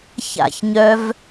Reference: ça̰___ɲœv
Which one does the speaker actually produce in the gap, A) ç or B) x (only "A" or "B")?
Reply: A